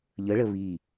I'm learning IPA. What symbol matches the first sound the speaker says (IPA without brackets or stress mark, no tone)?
ʎ